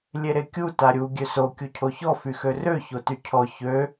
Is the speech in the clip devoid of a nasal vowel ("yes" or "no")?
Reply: yes